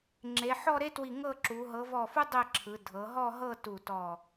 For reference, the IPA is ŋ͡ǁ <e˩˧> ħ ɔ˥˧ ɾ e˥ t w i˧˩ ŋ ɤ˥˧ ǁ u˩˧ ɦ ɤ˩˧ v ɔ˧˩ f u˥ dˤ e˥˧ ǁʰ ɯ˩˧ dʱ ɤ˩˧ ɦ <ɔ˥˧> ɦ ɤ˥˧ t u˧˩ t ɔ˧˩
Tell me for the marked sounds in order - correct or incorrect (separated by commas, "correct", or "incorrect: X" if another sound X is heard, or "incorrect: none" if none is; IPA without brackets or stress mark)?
correct, correct